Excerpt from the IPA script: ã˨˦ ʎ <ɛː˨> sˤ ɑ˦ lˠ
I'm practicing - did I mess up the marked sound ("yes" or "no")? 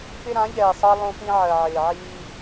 no